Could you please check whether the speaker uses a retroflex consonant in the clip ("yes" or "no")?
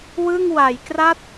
no